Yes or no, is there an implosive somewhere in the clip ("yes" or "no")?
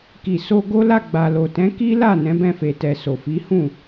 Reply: no